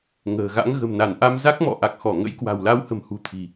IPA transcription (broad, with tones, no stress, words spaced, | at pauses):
ŋə̤ː˨˩ɣa̰˧˥ŋ ɣə̤˨˩mna˧˩nʔa˧m za˦˥k̚mɔ̰˧˨ ʔa˨˩k̚xɔ˧˩ŋə̰˧˥jkwa̤˨˩w la˨˦whə̤˨˩mhṳ˨˩ t̪ʰi̤˨˩